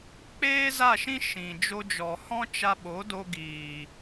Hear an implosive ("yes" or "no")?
yes